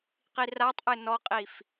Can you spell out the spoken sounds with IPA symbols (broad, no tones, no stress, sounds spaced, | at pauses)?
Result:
q i r a tˤ ʔ ɘ n ɔ qʼ i f